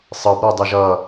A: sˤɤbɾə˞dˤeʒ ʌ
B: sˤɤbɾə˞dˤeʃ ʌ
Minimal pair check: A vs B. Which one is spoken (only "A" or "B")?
A